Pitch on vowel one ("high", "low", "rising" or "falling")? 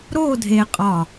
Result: falling